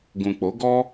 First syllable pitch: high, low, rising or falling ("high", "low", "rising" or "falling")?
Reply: low